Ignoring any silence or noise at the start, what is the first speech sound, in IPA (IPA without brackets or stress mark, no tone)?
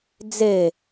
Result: d͡z